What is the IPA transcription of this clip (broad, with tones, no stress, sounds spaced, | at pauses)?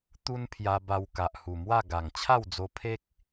t̪ u˦ n pʰ j a˧ b a˧ w k a˨ ʔ h u˨˩ m w a˥˧ ɡ a˨˩ ŋ t͡ɕʰ a˥˧ w d͡z o˧ pʰ e˦ k̚